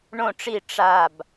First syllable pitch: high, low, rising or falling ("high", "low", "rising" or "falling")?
falling